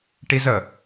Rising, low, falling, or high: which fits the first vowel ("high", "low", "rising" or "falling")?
high